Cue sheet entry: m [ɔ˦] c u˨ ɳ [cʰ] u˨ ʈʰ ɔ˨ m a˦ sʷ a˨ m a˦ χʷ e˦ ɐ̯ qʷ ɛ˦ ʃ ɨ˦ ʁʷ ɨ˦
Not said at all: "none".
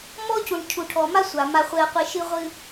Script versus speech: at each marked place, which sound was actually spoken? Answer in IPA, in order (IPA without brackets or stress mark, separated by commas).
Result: ɔ˦, cʰ